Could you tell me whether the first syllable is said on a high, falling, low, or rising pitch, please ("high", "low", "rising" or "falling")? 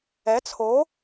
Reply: rising